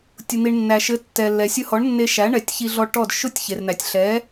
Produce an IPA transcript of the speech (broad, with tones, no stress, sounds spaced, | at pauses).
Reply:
tʲ ʊ˩ n̪ i˩ ɳ nː æ˩ ʃ ɘ˩˥ tː ɛ˩ lː ɛ˩ sʲ ʊ˧ h ɔ˩˥ ɳ nː e˧ ʃ æ˩˥ ɳ ɛ˩˥ tʲ ç i˧ ɮ ɔ˧ ʈ ɔ˥˩ d ʃ ʊ˥˩ tʲ ç e˩ r n̪ æ˩ tʲ ɬ ɛ˩˥